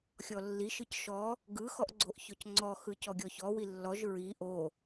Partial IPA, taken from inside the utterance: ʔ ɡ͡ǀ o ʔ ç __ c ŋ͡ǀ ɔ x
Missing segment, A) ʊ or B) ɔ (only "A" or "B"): B